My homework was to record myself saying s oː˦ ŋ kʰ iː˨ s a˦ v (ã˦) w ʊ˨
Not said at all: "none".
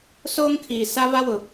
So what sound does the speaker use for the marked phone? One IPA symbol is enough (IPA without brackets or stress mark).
a˦